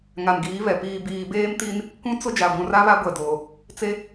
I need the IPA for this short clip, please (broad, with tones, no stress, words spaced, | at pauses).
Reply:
ŋa˨nɡiː˨˦βɛ˨ piː˨biː˨ beː˦mti˦n | kũ˦t͡sʊ˦ d͡ʒa˨ɡʷũ˨ra˦βa˦ ɡʷɛ˨doː˨ | t͡se˦